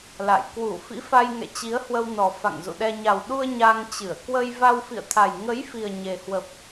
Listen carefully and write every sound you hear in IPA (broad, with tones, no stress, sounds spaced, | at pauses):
l a̰˧˨ j k w u˧˩ f ḭ˧˥ f a˧ j ŋ ɛ̰˧˨ t͡ɕ i˨˦ ə̯ h w ə˧ w n ɔ˨˩ f a̰˧˨ ŋ z ṵ˧˨ ɗ ɛ˧ ɲ a˨˩ w ɗ u˧ ə̯ ɲ a˧ ŋ t͡ɕ ɨ˧˩ ə̯ k w ə˧ j v a˧ w f ḭ˧˨ ə̯ t̪ʰ a˨˩ j ŋ ə˨˦ j f i˨˩ ə̯ ɲ e˨˩ h w ə˨˩ p̚